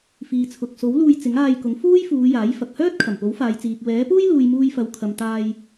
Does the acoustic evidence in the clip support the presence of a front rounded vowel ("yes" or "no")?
yes